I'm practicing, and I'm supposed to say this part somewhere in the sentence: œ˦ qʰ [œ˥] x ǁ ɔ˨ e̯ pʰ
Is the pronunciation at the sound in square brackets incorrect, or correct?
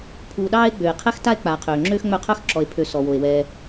correct